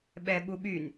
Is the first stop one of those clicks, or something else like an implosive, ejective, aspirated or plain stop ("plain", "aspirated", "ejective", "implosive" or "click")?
implosive